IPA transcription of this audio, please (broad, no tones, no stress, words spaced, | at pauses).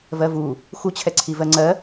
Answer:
vɜvu | xut͡ɕʰɛǀʰi vɜŋ͡ǀɜ